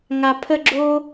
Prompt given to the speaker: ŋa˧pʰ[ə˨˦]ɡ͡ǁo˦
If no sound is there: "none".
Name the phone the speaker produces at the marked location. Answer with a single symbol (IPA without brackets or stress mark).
ə˦